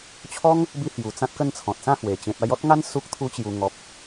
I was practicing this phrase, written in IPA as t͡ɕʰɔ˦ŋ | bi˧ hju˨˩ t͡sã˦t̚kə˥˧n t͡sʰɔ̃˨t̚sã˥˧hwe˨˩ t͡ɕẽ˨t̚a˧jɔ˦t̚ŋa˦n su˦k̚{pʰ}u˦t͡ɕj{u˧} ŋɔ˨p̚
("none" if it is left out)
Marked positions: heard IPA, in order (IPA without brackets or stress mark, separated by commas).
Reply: t̪ʰ, u˧